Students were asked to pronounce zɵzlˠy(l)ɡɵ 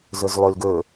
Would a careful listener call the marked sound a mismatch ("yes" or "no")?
no